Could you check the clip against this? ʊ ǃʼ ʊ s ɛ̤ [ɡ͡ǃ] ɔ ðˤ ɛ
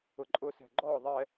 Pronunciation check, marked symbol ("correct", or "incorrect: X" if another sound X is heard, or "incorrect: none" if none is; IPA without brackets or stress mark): correct